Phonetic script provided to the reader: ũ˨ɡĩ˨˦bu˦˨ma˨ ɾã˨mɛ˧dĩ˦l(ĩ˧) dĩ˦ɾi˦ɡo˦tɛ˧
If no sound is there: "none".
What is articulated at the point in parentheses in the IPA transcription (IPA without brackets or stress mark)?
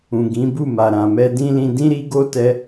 ĩ˧